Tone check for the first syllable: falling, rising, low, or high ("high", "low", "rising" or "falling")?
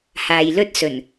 low